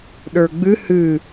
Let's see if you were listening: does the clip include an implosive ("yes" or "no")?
yes